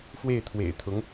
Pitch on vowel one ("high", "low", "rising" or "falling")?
falling